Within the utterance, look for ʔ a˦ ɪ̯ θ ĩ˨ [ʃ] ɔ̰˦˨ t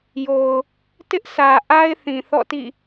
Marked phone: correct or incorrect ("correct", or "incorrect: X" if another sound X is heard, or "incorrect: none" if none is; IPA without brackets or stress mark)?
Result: incorrect: θ